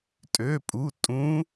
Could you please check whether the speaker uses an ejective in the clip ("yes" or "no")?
yes